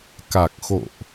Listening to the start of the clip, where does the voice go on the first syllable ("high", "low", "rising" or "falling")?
low